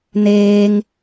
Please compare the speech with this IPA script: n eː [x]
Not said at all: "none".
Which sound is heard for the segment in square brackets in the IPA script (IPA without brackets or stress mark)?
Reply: ŋ